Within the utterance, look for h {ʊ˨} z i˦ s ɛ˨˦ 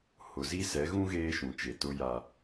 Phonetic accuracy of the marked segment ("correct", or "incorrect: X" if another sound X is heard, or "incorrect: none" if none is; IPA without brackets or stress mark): correct